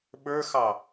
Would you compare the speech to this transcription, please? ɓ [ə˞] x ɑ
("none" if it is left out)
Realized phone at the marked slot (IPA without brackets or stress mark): ə˞